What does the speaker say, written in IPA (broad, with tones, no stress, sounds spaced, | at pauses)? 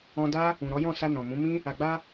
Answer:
ɔ̃˧ d a˦ | ũ˨ ɾ ɔ˨˦ j ɔ̃˦˨ s a˧ n ɔ̃˨ m ũ˨˦ m ĩ˦ | a˨ ɡ͡b a˧